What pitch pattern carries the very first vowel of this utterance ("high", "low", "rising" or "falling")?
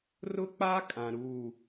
high